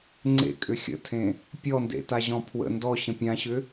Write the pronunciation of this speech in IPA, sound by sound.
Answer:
ŋ͡ǀ ḛ kʼ ʏ xʲ ə̰ tʰ ẽ | pʲ ɔ n d ḛ t a ʑ ɔ̃ pʰ w ə̰ n d ɔ ɕ ə̃ pʲ ã ɕ ʏ

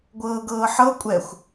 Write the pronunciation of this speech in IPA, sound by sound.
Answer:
ɡʷ ɤː ɡ ɤː ħ ɤ kʷʼ ɛ xʷ

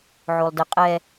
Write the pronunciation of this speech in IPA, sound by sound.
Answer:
ʕ o lˠ d ə qʼ ɛ

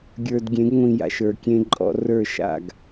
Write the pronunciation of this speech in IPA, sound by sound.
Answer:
ɡʲ ə˞˨ d ɡʲ ẽ˨˦ ɡ ŋʷ ĩ˨ j a̰˨ ʃ ə˞˨ kʲ ẽ˦ ǃʼ ɔ̰˦ r ə˞˦˨ ʃ a̰˦˨ ɡ

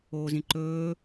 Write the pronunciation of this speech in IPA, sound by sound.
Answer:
oː z ĩ ǃ ɵː

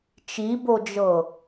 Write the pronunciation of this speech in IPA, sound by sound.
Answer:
t͡ʃ i b o d͡ʒ ɤ

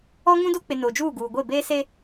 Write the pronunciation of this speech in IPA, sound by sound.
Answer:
ɔ˦ ŋ ũ˦ d o˦ k͡p ɪ˨ n oː˨ d͡ʒ uː˦˨ ɡ uː˨ ɡʷ e˦˨ b eː˦ s e˦

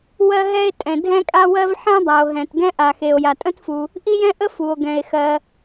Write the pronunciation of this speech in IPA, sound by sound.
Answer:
w ɜ˥ ɦ ɛ˥ e̯ tʼ ɛ̃˩ dʱ ɛ̃˥ kʼ a˥ w ɜ˥ v ħ ɛ̃˥ dˤ a˩ o̯ ɦ ɛ̃˩ t ɡ ɛ̃˥ ʔ a˩ x e˩ o̯ j a˩ tʼ ə̃˥ t f u˩ | ʔ i˥ j ɛ̃˥ ʔ ə˥ f u˩ o̯ ɡ ɛ̃˩ e̯ x ɜ˩

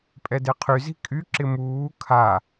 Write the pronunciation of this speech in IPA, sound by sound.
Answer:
pʼ ɛ d e qʰ y z i̤ kʼ y ǁ ɪ m uː kʰ a

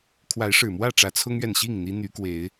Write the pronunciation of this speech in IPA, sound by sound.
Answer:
kʰ w a˨˦ ɪ̯ ʂ ɻ̩˨˩ m w ä˥˨ ʈ͡ʂ ä˨˦ t͡sʰ ʊ˦ ŋ ɥ ɛ˨ n ɕ i˥˨ ŋ n̪ i˦ n̪ y˨˦ k w e˨˦ ɪ̯

